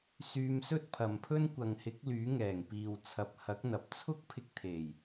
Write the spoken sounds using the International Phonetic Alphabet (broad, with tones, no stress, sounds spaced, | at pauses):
s yː˧ m s ɵ˥ t̚ pʰ ɐ˨ m pʰ ɵ˥ n kʷ ɐ˨ ŋ h ɪ˨˥ k̚ l yː˨˥ ŋ ɛː˨˩ ŋ p iː˨ w t͡sʰ ɐ˨ p̚ h ɐ˨˥ k̚ n̪ ɐ˨ p̚ t͡sʰ ʊ˥ k̚ pʰ ɪ˧ k̚ t̪ʰ e˨˩ j